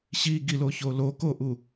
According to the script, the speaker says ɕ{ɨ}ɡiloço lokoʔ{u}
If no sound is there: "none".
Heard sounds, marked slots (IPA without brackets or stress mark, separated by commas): i, u